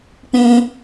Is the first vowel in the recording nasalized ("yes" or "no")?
yes